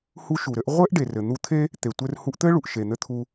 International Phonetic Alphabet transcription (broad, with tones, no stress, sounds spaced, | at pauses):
h u˧ ʃ u˩ ɾ ɘ˧ ʔ ʁʷ ɘ˥ ʔ ɖ e˩ r ɘ˩ n̪ u˧ t̪ʰ e˥ | t̪ e˩ tʷ ɘ˧ r h u˧ ʔ t̪ ɘ˥ ɭ u˩ ʔ ʃ e˩ n̪ ɘ˧ t̪ʰ u˧